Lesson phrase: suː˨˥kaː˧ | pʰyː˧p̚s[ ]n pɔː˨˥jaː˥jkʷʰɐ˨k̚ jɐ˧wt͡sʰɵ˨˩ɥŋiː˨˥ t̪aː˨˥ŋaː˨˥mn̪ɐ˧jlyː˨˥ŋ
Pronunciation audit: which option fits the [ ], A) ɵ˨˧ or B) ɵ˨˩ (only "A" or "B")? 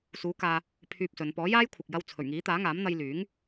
A